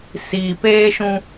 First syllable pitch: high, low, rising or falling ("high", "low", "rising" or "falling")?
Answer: low